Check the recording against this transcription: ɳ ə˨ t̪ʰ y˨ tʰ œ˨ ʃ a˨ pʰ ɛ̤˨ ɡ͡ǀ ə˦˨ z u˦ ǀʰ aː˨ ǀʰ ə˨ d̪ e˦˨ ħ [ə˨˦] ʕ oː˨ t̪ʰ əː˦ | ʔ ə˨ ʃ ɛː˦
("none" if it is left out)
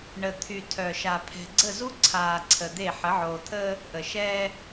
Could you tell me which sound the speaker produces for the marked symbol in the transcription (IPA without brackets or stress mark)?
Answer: ə˨˦